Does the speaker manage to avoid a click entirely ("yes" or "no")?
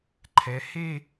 no